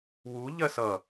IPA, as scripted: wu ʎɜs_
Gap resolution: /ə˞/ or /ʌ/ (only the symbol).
ʌ